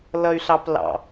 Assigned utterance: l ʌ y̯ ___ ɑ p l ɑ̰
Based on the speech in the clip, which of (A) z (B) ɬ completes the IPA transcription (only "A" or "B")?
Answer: B